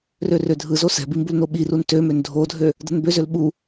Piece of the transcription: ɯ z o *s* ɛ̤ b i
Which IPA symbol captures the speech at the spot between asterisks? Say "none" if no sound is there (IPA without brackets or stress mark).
s